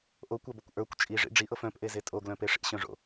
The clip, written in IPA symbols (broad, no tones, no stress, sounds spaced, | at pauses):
ʔ o kʷ a b ʊ kʷ ʔ ə˞ kʷ t͡ʃʼ i ʐ ḭ ɖ͡ʐ i ʔ ɤ f œ̃ p ʔ e z e tʼ o ɡ l œ̃ p e ʂ ḭ ɕ œ̃ ʐ o̰